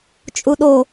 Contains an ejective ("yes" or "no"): yes